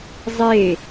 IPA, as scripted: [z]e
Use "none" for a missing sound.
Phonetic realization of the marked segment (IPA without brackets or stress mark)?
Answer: zˤ